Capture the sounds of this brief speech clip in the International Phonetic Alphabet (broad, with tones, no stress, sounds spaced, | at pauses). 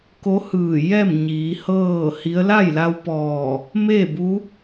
k o˧˥ h ɯː˧˩ j ɛː˥˨ m ɲ iː˩˧ h ɤː˥˨ h i˧˥ ə̯ l a˥˨ j l a˧ w p ɔː˧˩ | m eː˥˨ b u˧˥